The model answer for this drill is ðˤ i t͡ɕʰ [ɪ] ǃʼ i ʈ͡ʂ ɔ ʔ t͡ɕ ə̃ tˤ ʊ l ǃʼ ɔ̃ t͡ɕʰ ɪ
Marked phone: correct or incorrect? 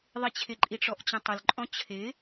correct